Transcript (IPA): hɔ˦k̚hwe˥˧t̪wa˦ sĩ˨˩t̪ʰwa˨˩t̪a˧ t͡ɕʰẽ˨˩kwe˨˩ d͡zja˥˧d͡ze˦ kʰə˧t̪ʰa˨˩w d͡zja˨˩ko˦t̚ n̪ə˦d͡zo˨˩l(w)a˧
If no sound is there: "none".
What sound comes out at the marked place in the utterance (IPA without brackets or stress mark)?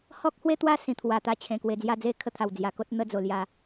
j